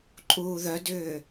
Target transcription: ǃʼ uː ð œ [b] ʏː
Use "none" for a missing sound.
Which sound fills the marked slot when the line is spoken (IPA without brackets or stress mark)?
d